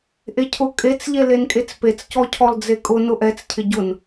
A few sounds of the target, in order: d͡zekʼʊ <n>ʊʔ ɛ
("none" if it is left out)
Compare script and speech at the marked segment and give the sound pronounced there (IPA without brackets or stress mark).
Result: n